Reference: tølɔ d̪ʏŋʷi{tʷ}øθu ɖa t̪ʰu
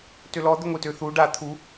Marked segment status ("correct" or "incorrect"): incorrect